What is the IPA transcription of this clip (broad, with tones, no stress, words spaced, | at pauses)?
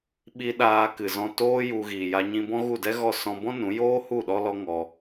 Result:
ɓi˦ ɗaː˧kɨ˨zɔ̃˧ toː˦ju˧ ɣiː˨ja˧ɲĩ˧bɔ̃˦ ɣu˦˨dɛ˦ɣɔ˦˨ sɔ̃˧bɔ̃˦ nũ˨˦ joː˦hu˦˨ ɗɔ˦ lɔ˦ŋɔ˧